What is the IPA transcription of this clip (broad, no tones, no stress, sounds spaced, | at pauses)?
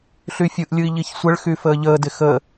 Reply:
ɬ y fʲ ɯ ʔ lʲ ɯ i̯ ʎ i ç sʷ ə ɭ x y f əː ʎ əː d ɪ x əː